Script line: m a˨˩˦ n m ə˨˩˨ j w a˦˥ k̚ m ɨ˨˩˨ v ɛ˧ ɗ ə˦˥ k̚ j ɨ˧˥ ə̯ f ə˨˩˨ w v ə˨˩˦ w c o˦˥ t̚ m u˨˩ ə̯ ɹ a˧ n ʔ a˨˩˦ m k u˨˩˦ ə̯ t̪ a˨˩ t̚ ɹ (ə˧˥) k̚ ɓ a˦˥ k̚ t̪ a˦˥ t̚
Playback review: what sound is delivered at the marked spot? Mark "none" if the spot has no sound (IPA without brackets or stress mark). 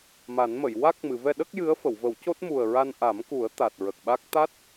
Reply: ə˨˩